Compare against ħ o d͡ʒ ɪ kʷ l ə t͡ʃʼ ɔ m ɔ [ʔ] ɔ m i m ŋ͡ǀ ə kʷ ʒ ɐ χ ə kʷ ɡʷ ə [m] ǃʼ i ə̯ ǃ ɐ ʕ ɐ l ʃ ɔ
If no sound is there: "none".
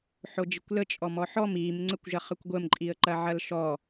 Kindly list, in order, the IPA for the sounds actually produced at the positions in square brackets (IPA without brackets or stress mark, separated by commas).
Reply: ħ, m